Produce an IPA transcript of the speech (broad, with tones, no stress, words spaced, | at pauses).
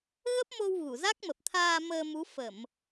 ɣə˦˥p̚mo˧w ɣu˧˩za˦˥k̚mə˨˩p̚t̪ʰaː˧ məː˧mu˨˦ fə˧˩˨m